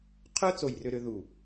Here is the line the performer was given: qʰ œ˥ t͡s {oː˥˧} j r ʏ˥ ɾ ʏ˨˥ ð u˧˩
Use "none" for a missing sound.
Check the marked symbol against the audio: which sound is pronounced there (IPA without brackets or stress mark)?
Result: o˥˧